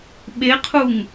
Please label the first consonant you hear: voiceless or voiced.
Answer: voiced